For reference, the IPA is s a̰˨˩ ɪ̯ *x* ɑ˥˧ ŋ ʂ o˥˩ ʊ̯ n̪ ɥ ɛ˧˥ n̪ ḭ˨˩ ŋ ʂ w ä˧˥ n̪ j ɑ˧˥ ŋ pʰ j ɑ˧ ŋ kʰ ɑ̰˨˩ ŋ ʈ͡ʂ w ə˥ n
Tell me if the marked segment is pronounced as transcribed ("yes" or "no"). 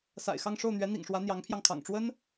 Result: yes